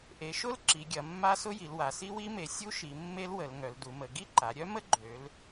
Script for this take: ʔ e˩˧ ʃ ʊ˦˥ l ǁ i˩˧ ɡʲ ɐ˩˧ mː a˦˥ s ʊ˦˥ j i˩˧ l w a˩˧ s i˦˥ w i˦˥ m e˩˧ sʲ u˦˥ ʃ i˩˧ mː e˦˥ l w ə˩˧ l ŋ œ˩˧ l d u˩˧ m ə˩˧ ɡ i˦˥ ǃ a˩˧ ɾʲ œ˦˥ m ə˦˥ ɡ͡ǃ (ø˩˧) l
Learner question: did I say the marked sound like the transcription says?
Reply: yes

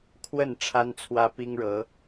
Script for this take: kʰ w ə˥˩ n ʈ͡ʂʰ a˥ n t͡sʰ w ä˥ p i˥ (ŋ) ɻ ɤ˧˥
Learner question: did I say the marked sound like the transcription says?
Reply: yes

